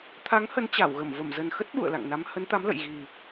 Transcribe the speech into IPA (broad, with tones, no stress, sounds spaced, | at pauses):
t̪ʰ a˨˦ ŋ h ə˨˦ n t͡ɕ a˧˩ w ɣ ə˧˩ m v ə˧˩ m z ə˨˩ n x ə˦˥ t̚ ɓ ṵ˧˨ ə̯ l a̰˧˨ ŋ n a˨˦ m h ə˨˦ n t̪ a˨˦ m l ə̰˧˨ j ɣ i˨˩